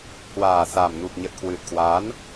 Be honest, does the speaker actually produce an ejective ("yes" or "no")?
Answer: no